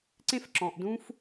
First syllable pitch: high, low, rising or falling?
high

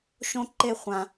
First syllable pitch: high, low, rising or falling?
high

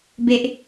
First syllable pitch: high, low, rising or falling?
low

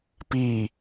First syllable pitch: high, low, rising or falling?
falling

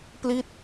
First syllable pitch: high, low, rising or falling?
falling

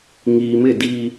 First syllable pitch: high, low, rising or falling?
low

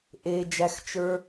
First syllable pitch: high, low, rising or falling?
high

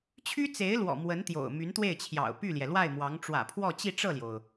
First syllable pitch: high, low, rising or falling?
high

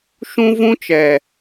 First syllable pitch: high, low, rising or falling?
high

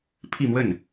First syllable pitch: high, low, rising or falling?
falling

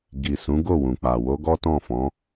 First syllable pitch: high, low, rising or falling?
low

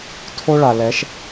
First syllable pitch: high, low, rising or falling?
high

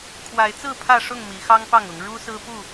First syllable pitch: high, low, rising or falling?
rising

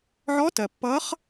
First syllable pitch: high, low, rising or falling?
rising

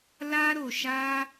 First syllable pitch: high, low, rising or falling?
high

